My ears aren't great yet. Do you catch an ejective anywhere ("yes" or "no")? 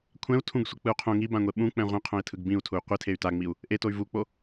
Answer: no